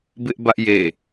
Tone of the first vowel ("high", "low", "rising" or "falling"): high